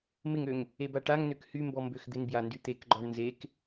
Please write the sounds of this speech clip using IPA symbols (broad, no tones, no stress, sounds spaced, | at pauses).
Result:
m ɪ ŋ ø ŋ | e b a ʈ a ŋ n ø k h y m b ɔ m b ø x d̪ ɪ n b j a n d y t̪ e k ɡ͡ǃ ɔ ɳ n z e k